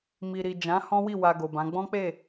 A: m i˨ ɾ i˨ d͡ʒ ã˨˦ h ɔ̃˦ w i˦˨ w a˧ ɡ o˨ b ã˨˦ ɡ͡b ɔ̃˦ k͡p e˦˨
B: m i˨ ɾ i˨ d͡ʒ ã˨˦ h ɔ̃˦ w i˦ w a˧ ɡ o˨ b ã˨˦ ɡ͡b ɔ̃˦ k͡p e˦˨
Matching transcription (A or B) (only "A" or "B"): A